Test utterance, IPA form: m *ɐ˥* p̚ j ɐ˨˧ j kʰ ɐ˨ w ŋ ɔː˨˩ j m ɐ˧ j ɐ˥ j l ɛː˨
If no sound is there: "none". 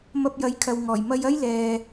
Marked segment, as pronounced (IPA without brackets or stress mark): ɐ˧